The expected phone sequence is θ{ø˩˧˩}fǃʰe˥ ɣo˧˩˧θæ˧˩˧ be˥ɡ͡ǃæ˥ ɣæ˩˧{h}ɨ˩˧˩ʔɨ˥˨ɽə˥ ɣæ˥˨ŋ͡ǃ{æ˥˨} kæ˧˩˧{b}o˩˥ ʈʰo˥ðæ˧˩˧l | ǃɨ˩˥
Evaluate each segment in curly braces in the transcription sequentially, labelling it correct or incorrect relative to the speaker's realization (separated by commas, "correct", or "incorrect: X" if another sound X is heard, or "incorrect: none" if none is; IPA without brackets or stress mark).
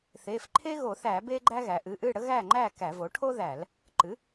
incorrect: e˩˧˩, incorrect: ʔ, correct, incorrect: v